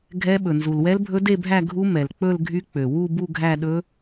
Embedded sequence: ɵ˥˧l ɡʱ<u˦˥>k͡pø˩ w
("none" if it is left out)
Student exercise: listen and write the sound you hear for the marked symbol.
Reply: y˦˥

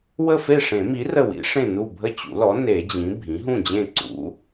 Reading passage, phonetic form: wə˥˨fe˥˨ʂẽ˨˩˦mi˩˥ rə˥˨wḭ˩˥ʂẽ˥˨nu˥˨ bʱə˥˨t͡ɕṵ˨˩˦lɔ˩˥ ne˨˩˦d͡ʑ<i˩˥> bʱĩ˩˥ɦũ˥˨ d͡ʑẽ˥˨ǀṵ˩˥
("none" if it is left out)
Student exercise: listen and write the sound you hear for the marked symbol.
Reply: ĩ˩˥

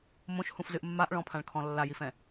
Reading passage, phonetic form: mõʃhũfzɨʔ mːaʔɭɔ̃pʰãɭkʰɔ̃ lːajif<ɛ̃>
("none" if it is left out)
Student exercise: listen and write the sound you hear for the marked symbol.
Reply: ɛ̃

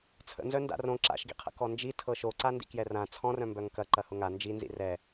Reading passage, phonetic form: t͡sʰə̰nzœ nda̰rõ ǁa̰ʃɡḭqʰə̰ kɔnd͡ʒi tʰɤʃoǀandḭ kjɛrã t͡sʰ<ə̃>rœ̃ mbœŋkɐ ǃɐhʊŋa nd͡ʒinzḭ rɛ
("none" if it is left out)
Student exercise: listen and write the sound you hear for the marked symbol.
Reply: ɔ̃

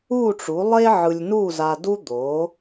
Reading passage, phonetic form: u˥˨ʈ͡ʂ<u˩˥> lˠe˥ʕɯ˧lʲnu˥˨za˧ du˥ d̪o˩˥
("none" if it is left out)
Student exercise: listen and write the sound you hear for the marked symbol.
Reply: u˩˥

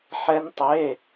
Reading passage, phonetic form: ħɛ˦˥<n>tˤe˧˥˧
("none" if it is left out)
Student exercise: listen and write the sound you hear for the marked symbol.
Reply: n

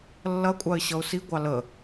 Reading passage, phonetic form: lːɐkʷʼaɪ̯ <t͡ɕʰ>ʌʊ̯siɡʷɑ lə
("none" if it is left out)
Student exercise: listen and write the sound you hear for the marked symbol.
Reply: ɕ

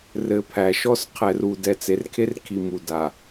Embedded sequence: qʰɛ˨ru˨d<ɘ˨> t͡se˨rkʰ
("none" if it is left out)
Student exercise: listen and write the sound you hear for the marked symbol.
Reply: ɛ˨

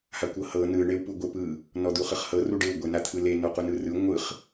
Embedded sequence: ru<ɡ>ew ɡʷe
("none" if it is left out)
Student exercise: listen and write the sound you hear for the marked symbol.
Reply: ɖ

